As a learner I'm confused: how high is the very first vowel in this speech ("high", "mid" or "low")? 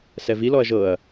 mid